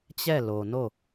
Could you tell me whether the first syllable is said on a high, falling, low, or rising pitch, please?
falling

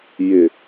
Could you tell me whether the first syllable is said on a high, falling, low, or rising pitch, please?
low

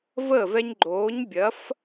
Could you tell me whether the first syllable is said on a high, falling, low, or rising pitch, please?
falling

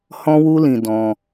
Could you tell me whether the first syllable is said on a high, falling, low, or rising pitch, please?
high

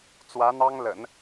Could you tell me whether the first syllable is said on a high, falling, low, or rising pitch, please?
rising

